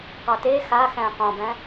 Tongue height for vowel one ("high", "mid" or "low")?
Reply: mid